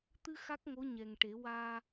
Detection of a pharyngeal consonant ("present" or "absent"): absent